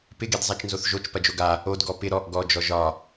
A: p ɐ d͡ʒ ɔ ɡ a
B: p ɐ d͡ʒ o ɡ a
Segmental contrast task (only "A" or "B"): B